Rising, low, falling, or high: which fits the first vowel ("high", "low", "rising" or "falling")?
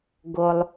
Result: low